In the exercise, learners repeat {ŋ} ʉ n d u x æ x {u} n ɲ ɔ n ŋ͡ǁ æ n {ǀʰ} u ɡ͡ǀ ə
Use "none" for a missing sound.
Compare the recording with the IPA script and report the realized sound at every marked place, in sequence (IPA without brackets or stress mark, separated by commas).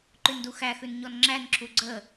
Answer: ǃ, ʉ, ǁʰ